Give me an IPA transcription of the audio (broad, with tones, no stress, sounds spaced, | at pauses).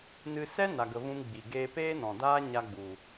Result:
n ɨ˧ s ɛ˦ n a˨ ɡ ə˨ v ũ˧ m ɡ͡b i˨ ɡ eː˧ p eː˦ n ɔ̃˨ d aː˦ ɲ a˧ ɡ͡b u˨